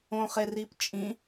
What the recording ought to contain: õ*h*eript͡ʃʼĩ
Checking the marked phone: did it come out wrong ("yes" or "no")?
yes